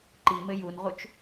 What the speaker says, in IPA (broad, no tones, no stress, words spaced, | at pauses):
ǃimɘ junʁut͡ʃ